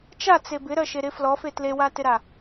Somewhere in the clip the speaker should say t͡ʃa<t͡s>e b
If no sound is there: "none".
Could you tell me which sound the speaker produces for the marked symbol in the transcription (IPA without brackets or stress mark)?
t͡s